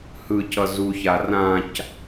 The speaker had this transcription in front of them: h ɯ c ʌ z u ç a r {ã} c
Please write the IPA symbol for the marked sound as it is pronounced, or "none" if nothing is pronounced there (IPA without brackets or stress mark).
ã